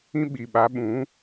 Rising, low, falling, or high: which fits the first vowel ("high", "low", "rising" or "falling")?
high